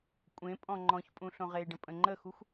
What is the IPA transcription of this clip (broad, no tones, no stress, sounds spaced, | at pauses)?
kʷʼ ẽ pʼ ɔ̃ ŋ͡ǃ ɔ̃ ç pʼ ũ ɬ õ ʁ e ɖ ə̃ pʼ ə̃ ŋ͡ǃ ə x u xʷ